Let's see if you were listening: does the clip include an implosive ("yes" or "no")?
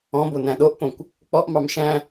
yes